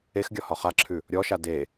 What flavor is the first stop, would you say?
plain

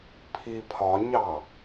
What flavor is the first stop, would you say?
aspirated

